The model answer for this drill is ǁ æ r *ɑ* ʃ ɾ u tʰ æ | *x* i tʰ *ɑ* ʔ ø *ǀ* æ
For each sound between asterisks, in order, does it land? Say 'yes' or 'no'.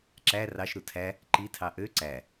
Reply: yes, no, yes, yes

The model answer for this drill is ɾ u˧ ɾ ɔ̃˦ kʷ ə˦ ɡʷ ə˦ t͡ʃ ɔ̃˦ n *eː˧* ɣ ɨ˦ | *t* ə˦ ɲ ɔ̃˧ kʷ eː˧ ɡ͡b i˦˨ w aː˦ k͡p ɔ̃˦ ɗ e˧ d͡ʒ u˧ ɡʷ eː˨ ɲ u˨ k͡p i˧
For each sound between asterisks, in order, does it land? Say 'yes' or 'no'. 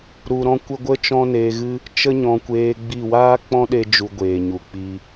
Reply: yes, no

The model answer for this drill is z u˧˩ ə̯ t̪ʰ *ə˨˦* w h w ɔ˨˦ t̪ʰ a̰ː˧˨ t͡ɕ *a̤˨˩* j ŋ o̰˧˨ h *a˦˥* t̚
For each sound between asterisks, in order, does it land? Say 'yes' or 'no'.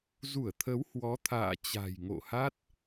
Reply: yes, yes, yes

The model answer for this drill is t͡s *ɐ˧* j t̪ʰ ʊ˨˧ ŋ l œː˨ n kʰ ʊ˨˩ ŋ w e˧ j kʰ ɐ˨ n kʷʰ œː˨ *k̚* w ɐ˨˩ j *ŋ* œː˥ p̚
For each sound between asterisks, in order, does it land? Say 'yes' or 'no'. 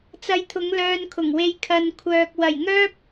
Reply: yes, yes, yes

